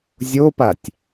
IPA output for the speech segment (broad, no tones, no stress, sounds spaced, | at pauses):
zʲ o p a tʲ